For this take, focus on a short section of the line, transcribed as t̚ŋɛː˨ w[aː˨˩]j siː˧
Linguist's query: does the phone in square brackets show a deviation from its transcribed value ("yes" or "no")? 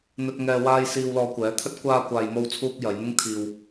yes